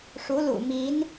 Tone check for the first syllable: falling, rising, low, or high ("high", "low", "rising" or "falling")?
rising